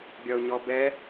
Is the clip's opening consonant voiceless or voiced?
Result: voiced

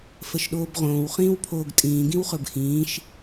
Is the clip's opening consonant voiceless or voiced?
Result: voiceless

